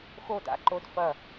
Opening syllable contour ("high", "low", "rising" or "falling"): falling